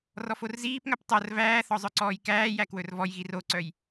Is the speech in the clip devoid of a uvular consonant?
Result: yes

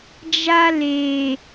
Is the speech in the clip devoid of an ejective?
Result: yes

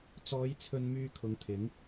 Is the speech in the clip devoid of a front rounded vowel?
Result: no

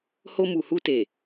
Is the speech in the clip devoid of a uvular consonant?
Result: yes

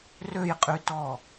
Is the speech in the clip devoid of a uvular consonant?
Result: no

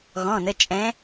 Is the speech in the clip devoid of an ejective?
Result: no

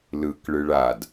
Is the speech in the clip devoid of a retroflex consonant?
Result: no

